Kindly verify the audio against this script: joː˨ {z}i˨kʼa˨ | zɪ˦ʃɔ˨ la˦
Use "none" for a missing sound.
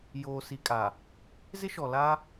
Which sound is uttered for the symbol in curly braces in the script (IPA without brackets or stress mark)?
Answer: s